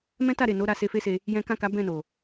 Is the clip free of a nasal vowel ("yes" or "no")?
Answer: no